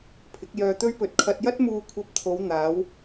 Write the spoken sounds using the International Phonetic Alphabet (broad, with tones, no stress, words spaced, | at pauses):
pʰɪ˨˥k̚jœː˧t̪ɵ˥ɥpɵ˧t̚ kʰɐ˧t̚jɐ˥t̚muː˧ kʷʰɐ˧p̚t̪ʰo˨˧wn̪aː˨˧w